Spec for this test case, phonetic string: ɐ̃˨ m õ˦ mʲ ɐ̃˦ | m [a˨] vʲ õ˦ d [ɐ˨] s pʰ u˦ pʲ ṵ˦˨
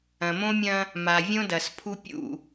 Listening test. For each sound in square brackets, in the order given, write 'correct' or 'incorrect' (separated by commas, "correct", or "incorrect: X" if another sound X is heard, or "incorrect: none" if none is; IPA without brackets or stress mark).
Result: correct, correct